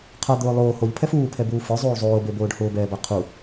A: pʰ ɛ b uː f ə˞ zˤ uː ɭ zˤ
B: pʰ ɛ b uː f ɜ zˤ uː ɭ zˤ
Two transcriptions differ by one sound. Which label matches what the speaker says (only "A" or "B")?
A